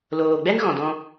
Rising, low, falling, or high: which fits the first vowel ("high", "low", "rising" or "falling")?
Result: low